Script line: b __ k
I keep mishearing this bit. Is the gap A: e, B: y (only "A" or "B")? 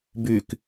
B